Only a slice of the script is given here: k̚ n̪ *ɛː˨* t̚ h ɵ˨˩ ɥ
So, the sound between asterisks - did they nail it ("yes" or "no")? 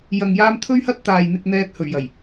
yes